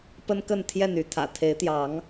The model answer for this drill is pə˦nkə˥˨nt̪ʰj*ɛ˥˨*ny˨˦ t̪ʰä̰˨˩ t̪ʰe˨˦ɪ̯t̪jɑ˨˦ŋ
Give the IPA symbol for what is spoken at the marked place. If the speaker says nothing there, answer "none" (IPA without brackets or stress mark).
ɛ˥˨